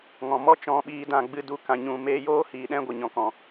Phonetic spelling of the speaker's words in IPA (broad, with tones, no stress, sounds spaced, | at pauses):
ŋ ɔ̃˨ m ɔ˦ t͡ʃ ɔ̃˧ ɓ iː˧ d ã˨ ɡ͡b ɨ˧ d u˧ k ã˨ ɲ ũ˨ m eː˧ j oː˦ h iː˨ ɗ ɛ̃˦ ɡʷ ə˨ ɲ ɔ̃˨ k ɔ̃˨